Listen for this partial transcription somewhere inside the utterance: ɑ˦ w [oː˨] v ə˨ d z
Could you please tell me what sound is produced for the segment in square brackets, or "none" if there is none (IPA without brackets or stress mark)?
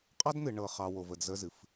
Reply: o˨